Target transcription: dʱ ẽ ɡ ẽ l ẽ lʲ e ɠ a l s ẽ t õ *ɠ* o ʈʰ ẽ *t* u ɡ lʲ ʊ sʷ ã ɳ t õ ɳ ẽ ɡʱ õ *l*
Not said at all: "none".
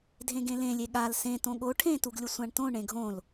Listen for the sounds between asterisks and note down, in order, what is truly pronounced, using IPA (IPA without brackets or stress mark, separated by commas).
ɠ, t, l